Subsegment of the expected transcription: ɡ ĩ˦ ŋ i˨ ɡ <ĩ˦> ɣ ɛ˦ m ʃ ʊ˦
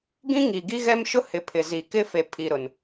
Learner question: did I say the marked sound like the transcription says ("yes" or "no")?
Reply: no